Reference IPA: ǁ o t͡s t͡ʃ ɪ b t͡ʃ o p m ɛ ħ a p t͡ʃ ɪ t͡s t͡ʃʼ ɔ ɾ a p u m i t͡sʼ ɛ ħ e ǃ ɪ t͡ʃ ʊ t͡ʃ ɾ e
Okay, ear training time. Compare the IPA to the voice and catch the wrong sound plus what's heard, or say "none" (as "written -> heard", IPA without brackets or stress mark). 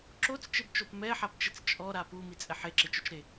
ǃ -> ǁ